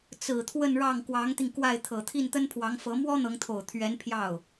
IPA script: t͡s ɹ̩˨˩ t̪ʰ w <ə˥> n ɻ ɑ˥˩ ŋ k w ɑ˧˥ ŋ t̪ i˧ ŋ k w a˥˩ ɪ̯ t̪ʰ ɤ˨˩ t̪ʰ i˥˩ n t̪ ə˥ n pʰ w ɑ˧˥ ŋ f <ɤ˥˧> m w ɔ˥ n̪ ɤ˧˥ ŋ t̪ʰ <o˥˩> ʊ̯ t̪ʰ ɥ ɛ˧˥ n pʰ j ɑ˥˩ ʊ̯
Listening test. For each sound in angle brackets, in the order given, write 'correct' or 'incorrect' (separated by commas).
incorrect, incorrect, incorrect